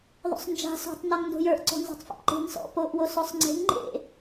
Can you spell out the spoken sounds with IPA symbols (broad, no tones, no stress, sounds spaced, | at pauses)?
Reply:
ðˤ o̰ sˤ n d͡ʒ a̤ s o̤ tˤ n ɔ ŋ n d o̤ j ə˞ ʔ ǀ ɔ̤ n z ɔ̤ tˤ f ḛ p ǃ e̤ ŋ s ɔ̰ p o ʔ w o s o sˤ ŋ͡ǀ e̤ ŋ ŋ͡ǃ ḛ